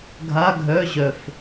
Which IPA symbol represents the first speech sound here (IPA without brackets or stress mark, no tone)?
ɡʱ